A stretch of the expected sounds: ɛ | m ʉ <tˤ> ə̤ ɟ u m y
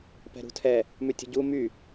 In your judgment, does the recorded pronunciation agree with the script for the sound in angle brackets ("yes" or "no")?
no